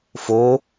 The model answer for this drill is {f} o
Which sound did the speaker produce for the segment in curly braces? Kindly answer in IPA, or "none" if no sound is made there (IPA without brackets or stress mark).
f